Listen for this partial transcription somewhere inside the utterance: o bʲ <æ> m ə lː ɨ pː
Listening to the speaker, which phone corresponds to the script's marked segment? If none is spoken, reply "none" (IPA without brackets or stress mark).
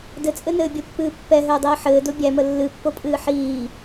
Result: æ